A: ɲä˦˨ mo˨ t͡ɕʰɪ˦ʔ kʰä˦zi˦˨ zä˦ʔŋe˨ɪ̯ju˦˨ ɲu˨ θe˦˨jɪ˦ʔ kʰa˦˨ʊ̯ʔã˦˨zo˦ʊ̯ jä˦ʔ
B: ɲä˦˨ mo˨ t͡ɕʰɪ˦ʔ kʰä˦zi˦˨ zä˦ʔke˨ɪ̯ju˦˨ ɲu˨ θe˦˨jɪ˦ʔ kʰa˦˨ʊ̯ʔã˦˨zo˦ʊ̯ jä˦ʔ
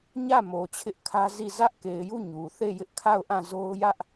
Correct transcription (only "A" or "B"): B